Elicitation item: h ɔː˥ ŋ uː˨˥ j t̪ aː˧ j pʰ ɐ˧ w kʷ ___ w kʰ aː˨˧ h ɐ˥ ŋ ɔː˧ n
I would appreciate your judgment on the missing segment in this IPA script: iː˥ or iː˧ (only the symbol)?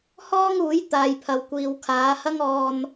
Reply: iː˧